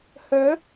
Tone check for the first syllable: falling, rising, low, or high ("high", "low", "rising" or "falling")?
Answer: rising